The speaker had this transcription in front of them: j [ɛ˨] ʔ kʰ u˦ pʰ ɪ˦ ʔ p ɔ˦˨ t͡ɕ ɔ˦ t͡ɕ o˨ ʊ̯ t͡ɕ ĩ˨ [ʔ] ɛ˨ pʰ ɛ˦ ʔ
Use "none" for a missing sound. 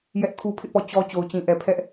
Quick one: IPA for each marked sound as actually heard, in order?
ɛ˦, ʔ

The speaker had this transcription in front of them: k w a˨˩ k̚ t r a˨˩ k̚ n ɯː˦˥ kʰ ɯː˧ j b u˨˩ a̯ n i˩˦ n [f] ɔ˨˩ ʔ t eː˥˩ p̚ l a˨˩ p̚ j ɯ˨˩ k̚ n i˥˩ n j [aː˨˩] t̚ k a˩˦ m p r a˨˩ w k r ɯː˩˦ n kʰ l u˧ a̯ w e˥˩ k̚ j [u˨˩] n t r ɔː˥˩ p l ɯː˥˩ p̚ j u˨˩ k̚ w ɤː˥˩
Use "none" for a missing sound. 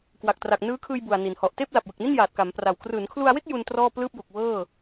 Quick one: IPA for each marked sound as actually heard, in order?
h, aː˨˩, u˧

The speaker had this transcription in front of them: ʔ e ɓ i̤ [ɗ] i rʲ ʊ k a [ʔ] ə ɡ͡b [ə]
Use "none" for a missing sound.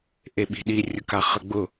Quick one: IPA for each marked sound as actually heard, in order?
ɗ, χ, ʊ

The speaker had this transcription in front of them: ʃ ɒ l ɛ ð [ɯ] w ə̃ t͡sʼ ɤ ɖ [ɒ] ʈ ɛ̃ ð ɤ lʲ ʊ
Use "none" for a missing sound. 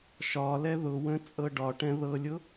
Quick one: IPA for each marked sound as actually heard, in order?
ʊ, ɒ

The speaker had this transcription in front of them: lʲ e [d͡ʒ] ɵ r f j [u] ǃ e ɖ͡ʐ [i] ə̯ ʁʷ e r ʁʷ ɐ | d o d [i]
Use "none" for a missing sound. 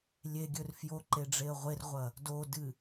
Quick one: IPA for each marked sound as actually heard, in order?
ɡʲ, o, e, ɨ

